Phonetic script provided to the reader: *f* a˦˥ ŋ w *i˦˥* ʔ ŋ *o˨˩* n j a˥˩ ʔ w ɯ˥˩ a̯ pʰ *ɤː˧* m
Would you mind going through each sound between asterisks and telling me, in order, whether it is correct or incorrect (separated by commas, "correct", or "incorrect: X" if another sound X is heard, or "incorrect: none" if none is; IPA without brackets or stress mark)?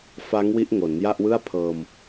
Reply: correct, correct, incorrect: o˩˦, correct